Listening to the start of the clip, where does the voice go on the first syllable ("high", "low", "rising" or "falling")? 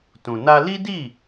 low